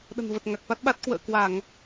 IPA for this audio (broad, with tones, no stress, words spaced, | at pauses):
ɗə̤˨˩nvə˨˩t̚ŋa˨˩k̚fa˦˥t̚ ɓa˦˥t̚ kwə̰ː˧˨kwa˧˩˨ŋ